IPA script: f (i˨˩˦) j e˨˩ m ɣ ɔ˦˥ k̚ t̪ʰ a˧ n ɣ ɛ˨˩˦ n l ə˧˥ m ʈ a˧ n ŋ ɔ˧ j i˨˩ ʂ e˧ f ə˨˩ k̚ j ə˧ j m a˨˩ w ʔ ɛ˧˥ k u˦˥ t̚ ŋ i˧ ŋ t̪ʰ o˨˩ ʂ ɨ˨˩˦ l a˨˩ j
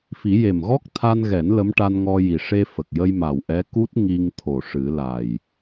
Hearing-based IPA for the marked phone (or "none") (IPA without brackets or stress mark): i˨˩˦